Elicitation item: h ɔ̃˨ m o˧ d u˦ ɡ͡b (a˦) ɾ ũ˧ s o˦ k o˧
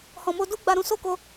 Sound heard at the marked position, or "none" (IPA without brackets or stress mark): a˧